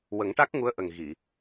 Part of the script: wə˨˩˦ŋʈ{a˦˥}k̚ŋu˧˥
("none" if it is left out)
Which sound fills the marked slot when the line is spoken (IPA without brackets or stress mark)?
a˦˥